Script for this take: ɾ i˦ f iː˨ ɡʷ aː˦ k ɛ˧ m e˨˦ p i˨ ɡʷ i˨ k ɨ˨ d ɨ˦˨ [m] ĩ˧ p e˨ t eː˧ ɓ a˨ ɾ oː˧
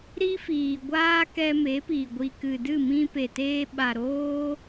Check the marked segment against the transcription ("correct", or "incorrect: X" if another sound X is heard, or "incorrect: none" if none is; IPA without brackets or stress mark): correct